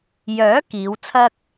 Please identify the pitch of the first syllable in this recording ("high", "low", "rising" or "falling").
rising